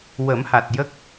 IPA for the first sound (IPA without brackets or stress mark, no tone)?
w